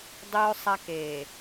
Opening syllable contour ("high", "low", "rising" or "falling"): high